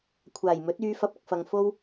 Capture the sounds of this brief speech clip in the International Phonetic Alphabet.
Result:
kʷʰ aː˨˩ j m ɵ˨˥ t̚ yː˨˧ f ɐ˨˥ p̚ ɐ˨ k̚ f ɐ˨ ŋ f o˥ w

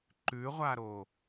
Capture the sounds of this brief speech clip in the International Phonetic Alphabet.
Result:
ǃ ʉ ʁʷ a ɾ o

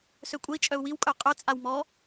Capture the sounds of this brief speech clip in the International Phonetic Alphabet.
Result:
s ø kʷʼ ə i̯ t͡ʃʼ œ u̯ w i w kʼ œ qʼ œ t͡sʼ a w m ɔ

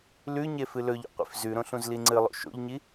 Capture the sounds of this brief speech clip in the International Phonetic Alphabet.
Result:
l ʉ ɲ e f ɨ l ɵ ʎ ṵ qʷ ḭ f z ʉ ɾ õ ɬ ũ z l i ŋ͡ǀ ɨ lˠ o̰ ʃ o̰ ʎ ɲ i

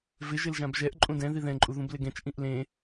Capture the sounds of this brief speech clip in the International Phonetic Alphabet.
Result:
v ɪ ʒ ɪ l ʒ ã b ʒ ɛ ʔ ǃʼ ũ d ɛ̃ ð i ð ɛ̃ ǃʼ u ð ũ b l ɪ ɡ ɛ̃ t͡ʃ ʔ ĩ ʔ l ẽ

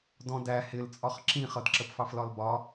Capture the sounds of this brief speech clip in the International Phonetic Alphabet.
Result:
d ɔ̃ d æ h ɪ l t͡sʼ ɒ χ ǁ ĩ χ ʌ d ǁ ə p f ɑ f l ɒ l b ɒ

